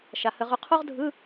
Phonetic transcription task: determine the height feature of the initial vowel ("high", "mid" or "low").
low